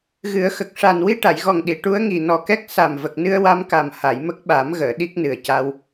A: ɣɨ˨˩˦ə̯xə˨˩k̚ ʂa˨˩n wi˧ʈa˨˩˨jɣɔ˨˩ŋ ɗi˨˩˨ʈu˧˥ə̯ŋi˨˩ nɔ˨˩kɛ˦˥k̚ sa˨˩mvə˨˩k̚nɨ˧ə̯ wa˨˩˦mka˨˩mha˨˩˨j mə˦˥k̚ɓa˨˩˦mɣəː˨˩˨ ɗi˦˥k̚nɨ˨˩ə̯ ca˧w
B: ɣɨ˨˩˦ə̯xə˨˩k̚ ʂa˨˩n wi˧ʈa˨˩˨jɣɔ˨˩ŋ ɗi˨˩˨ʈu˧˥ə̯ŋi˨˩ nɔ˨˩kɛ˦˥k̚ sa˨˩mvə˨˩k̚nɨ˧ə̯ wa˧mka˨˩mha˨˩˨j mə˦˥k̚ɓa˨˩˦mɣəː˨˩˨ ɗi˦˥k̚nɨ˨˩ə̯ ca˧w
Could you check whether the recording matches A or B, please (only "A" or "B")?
B